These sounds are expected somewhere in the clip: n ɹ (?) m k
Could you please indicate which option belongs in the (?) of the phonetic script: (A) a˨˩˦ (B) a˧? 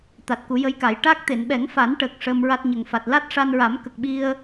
A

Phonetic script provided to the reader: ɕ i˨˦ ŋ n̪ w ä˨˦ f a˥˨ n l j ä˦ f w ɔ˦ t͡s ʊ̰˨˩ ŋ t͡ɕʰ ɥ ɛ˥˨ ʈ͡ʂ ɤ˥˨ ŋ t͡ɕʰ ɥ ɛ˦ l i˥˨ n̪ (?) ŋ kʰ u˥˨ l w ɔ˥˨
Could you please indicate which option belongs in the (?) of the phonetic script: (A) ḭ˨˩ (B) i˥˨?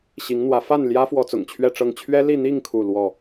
B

